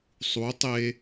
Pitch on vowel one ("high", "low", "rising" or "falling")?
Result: rising